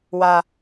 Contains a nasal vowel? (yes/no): no